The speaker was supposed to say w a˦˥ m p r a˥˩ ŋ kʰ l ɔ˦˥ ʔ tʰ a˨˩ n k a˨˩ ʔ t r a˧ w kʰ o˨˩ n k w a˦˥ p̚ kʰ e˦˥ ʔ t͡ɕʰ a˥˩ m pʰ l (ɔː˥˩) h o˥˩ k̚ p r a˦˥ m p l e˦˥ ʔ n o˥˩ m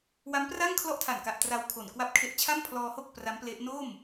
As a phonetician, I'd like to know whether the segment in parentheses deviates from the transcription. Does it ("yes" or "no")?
yes